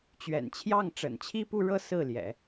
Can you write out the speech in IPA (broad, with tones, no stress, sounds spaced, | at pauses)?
t͡ɕ ɥ ɛ̰˨˩ n t͡ɕʰ j ɑ˥˩ ŋ ʈ͡ʂ ə̰˨˩ n t͡ɕʰ i˥ p u˥˧ ɻ ɤ˥˧ s ɹ̩˥˩ l j ɛ̰˨˩˦